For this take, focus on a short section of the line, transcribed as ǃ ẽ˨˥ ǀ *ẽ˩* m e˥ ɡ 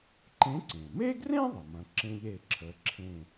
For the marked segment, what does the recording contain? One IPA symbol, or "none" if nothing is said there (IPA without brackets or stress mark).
ẽ˩